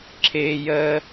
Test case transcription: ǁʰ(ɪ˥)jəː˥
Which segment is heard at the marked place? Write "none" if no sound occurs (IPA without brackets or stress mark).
ɪː˥